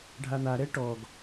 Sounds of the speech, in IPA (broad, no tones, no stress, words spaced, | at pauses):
ɖʱan̪a ɾɛʈɔɡ